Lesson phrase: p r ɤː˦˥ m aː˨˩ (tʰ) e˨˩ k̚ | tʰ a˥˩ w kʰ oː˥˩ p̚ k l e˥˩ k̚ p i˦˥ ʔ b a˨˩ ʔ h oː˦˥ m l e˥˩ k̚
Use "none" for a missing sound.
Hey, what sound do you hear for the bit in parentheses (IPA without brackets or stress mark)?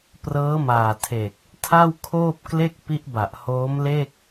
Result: tʰ